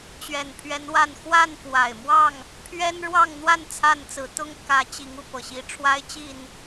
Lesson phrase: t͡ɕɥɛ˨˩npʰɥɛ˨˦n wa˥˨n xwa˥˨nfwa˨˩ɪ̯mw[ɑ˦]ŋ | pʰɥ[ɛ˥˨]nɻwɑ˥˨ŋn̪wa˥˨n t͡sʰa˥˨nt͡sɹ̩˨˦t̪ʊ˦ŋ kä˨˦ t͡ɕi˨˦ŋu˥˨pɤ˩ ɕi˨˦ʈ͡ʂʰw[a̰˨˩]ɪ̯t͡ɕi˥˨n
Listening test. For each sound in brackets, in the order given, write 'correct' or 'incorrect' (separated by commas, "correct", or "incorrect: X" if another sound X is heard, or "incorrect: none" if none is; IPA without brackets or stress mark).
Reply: incorrect: ɑ˥˨, incorrect: ɛ˦, incorrect: a˦